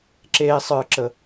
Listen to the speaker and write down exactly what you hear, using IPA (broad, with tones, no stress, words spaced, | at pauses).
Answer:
ǁeː˦sˤə˞˦ǁə˦